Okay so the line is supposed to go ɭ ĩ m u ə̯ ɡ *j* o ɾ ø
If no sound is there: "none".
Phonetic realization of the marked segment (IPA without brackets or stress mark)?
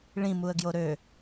j